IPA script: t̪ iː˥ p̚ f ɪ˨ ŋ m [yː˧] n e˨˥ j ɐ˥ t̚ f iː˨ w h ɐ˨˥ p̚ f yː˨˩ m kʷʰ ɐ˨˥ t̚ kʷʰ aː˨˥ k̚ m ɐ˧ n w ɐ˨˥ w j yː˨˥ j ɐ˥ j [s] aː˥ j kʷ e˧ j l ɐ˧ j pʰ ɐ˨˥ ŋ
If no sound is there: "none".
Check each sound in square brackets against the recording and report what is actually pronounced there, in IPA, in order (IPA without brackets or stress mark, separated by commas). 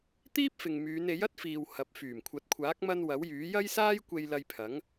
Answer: yː˨˧, s